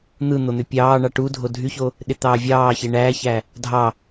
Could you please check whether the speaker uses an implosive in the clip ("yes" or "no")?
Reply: yes